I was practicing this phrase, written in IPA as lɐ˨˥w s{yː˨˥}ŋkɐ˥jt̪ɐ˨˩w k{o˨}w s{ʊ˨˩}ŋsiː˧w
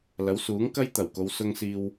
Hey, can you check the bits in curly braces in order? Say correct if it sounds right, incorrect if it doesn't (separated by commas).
incorrect, incorrect, incorrect